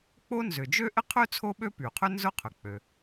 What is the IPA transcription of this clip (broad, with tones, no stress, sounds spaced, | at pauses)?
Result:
k͡p o˥ n z ʏ˩ d͡ʒ ø˥ ʔ ɪ˥ qʰ ø˥ t͡sʰ o˥ ɓ ø˥ p y˩ qʰ ʏ˥ n z ʊ˥ qʰ ʏ˩ k͡p ø˩